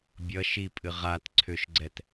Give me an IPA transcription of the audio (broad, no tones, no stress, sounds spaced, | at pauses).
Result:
bʲ ʌ ʃ i pʼ ɨ ʁ a t ǀʰ ʏ ʃ ɡ͡ǀ ɛ t